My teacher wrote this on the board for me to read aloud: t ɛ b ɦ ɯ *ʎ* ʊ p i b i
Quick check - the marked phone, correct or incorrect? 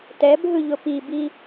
correct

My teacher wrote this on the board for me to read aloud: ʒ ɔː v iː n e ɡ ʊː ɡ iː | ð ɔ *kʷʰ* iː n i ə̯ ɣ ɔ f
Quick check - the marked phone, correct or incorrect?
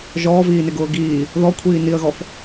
correct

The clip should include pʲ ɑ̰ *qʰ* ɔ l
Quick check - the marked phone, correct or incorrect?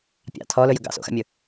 incorrect: tʰ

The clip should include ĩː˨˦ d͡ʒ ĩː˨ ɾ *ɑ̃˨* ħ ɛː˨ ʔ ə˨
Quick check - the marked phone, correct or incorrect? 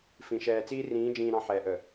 correct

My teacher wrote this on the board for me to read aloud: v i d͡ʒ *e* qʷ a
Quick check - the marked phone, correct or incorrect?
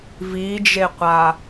correct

